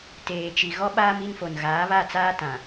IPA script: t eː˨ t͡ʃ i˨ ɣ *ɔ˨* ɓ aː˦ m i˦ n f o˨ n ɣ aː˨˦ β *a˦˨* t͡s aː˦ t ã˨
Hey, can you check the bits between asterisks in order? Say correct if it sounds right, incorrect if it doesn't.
incorrect: ɔ˦, correct

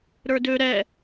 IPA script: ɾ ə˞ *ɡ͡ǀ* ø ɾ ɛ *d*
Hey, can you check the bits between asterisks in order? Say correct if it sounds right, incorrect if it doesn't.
incorrect: d, incorrect: none

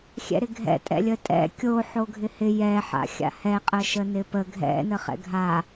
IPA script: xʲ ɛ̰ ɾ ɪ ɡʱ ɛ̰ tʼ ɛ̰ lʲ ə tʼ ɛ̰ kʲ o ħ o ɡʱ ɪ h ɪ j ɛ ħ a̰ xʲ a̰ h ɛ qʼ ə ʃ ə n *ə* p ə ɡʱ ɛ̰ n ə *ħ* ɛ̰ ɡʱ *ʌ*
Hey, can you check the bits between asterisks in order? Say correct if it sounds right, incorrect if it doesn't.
incorrect: ɪ, incorrect: χ, incorrect: a

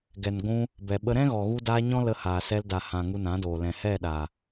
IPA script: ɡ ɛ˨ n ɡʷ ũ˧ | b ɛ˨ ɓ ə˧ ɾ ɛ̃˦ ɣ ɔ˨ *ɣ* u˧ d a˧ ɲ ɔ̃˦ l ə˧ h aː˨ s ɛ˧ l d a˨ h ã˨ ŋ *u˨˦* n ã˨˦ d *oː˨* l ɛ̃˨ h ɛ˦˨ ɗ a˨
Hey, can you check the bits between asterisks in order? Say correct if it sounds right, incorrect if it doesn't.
correct, incorrect: u˧, correct

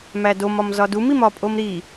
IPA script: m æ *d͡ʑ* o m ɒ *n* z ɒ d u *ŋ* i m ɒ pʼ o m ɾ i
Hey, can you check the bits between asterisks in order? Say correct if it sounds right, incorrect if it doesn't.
incorrect: d, incorrect: m, incorrect: m

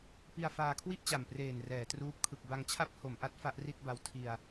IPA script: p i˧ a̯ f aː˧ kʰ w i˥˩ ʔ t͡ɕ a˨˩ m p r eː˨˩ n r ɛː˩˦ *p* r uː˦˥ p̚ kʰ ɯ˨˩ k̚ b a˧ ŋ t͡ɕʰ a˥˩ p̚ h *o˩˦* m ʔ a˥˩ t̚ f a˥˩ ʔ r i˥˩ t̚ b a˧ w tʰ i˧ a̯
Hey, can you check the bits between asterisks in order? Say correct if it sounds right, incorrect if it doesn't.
incorrect: t, correct

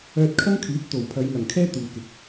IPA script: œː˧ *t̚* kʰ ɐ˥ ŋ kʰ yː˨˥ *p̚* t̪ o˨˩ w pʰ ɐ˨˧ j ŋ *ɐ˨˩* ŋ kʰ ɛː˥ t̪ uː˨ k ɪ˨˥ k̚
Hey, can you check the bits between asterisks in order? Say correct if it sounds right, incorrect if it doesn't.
correct, correct, correct

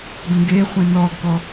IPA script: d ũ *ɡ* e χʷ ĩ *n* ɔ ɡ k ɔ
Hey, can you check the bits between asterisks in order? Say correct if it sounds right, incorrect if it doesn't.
correct, correct

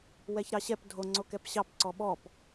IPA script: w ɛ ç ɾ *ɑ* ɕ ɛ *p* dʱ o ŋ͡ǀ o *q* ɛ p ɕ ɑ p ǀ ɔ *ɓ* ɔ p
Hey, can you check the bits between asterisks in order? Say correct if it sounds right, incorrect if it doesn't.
correct, correct, incorrect: k, correct

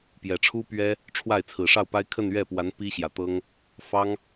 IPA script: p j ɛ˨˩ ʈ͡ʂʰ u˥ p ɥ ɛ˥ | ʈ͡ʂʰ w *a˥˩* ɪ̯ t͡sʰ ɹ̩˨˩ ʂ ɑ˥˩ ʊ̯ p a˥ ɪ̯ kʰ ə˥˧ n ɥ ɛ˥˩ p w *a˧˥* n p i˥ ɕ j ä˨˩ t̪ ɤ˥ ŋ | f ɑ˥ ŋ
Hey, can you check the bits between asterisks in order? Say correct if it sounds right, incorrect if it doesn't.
correct, correct

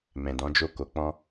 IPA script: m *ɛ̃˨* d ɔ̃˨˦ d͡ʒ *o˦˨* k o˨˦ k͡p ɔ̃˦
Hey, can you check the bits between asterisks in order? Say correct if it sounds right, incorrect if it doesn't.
correct, correct

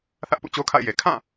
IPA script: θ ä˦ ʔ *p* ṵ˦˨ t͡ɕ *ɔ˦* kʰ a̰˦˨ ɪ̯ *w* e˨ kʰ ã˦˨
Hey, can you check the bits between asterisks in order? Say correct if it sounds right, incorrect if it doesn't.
correct, incorrect: o˦, incorrect: j

